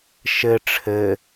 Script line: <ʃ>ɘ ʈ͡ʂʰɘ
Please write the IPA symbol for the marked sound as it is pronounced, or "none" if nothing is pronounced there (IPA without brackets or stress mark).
ʃ